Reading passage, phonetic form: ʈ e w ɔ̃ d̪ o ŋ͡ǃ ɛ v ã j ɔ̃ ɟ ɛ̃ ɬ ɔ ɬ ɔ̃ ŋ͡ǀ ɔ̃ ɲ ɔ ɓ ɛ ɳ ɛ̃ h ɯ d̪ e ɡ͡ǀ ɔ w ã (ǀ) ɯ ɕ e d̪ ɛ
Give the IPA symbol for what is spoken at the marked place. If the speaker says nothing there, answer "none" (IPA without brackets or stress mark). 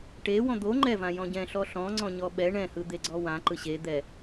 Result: ǃ